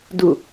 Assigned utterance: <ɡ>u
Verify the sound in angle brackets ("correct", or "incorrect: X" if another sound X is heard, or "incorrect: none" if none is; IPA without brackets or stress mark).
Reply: incorrect: d